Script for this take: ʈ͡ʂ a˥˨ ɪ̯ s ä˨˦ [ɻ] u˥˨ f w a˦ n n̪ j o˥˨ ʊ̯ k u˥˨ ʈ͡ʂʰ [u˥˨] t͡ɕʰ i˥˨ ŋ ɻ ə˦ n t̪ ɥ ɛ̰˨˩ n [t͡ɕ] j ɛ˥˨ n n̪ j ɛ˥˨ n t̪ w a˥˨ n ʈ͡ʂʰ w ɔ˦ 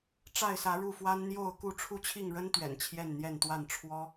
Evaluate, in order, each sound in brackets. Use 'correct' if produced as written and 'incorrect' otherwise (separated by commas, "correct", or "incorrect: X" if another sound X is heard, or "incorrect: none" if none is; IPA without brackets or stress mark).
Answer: correct, correct, incorrect: t͡ɕʰ